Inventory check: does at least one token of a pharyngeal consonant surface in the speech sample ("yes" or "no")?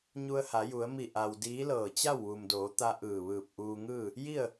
no